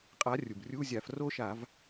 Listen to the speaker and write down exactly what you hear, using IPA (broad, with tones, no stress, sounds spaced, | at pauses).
qʼ a˨˥ rʲ u˩ b rʲ u˧˥˧ zʲ a˧˩˧ f r o˥˨ ʃ a˧˩˧ v